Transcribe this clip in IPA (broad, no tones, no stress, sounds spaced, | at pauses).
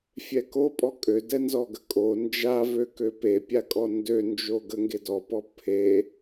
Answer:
fʲ ɛ k o pʼ ɔ kʼ ø d ɛ n z ɔ ɡ ə kʼ o n d͡ʒ a v ø k ø p e pʲ a kʼ ɔ n d ø n d͡ʒ o ɡ ə ŋ ɡ e d ɔ p ɔ pʰ e